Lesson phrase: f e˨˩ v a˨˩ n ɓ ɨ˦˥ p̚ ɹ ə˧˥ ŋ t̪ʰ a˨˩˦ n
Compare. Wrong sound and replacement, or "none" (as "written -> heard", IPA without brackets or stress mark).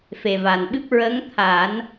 none